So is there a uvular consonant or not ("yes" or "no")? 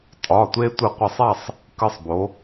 yes